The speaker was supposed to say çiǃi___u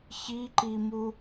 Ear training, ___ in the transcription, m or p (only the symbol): m